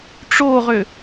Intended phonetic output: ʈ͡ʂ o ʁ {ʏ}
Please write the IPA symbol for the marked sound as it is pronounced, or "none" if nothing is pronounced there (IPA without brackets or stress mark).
ʏ